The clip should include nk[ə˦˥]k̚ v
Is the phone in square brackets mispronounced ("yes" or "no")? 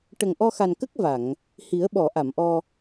no